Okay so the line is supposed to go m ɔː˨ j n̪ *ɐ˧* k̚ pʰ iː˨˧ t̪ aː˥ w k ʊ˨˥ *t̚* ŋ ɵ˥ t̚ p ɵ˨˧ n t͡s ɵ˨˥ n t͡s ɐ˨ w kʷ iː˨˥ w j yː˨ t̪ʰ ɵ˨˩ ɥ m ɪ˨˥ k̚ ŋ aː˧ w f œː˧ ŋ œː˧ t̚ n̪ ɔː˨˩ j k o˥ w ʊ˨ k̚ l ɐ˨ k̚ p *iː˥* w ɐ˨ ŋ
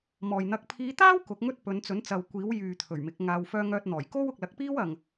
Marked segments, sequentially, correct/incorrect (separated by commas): correct, incorrect, correct